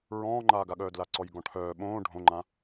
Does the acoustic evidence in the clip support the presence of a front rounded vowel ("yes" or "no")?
yes